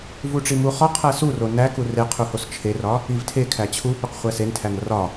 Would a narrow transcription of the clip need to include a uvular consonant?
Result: yes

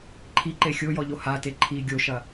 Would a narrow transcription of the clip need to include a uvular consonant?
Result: no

